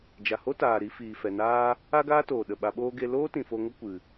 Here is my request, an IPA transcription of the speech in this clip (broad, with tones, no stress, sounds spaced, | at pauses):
d͡ʒ a˨ h o˦ t aː˨ ɾ i˧ f iː˨ f ɛ˨ n aː˦ | a˦ ɡ aː˦ t oː˨ ɗ ə˨ ɓ a˧ ɓ oː˦ ɡ e˧ l oː˦ t ĩ˨ f o˧ ŋ ə˦ kʷ ɨ˨